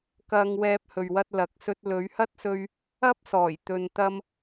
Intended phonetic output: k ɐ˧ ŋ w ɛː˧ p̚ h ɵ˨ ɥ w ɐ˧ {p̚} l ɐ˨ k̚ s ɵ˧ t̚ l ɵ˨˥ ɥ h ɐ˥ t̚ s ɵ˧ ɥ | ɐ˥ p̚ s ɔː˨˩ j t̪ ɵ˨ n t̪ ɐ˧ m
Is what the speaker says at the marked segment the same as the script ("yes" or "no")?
no